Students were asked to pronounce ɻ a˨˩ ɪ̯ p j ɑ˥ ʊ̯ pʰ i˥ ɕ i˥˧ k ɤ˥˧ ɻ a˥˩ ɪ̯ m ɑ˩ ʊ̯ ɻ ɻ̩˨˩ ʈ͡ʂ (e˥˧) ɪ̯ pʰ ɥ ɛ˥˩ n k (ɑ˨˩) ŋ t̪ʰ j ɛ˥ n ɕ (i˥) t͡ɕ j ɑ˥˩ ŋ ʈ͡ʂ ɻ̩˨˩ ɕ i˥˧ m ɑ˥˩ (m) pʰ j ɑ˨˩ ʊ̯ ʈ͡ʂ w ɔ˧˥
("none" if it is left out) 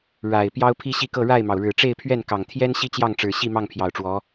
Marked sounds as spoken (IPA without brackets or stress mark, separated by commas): e˥˧, ɑ˨˩, i˥, ŋ